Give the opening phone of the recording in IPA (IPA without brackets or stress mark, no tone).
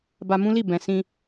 b